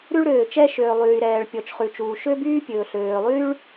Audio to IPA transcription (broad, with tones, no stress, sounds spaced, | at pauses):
ɾ ʉ˥ ɭ ɾ øː˩ t͡ʃ ɛ˥ ʃ øː˩ lˠ yː˩ ɾ ɛː˩ ɭ pʲ ɔ˩ t͡ʃ χ ʉ˩ t͡ʃ uː˩ ʃ ø˥ b yː˥ pʲ ɵː˩ ɬ øː˩ lˠ yː˥ ɭ